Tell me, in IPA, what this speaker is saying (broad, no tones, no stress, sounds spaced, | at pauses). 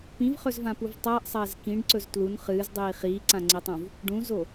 p ĩ v χ ɵ z v ã p u v tˤ ɐː ʔ sˤ ɐː z k ĩ ɖ ǀ ɵ z t l u n χ ɨː z dˤ iː χ iː ǀ ã ŋ͡ǀ i tˤ ũ v | ɖ ũ z o